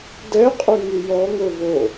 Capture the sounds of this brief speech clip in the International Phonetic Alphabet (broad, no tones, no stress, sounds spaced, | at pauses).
d ɛ qʼ y ŋ y j ɔ ŋ ɵ v o